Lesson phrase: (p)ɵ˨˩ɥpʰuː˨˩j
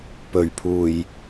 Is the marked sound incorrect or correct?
correct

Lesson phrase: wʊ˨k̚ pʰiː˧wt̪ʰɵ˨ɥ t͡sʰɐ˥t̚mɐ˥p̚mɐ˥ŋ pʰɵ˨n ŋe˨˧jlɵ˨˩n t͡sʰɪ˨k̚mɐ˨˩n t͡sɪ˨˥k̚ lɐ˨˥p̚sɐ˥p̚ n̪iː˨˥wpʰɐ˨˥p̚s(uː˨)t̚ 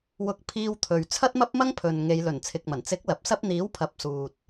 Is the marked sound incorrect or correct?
correct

